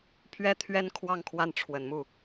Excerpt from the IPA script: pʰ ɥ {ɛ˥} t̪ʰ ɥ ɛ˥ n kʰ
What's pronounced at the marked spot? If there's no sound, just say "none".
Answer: ɛ˥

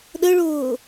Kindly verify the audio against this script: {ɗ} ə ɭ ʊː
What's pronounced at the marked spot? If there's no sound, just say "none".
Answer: ɗ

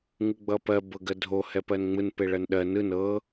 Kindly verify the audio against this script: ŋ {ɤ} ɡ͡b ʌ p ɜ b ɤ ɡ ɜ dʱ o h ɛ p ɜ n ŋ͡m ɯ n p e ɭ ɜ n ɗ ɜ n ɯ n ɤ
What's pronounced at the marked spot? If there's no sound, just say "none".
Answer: ɯ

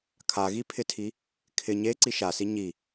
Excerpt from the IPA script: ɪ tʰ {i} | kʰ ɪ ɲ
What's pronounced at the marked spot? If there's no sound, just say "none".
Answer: i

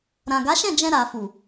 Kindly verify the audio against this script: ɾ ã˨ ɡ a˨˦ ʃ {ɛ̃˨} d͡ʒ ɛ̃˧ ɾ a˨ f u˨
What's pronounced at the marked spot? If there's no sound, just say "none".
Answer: ɛ̃˦˨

